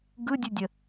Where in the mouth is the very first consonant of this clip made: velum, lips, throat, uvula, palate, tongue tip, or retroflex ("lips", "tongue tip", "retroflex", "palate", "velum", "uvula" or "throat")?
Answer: velum